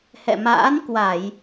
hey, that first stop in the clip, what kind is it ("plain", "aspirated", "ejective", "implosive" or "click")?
plain